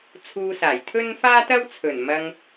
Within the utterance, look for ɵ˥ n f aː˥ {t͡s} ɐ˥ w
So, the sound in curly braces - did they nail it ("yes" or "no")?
no